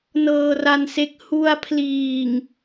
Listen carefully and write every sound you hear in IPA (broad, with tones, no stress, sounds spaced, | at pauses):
n ɤː˧ r a˧ n s e˦˥ k̚ h u˧ a̯ pʰ l iː˨˩ ŋ